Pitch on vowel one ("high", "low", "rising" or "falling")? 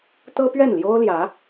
high